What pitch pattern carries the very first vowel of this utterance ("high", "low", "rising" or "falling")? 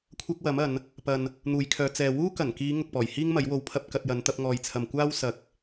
high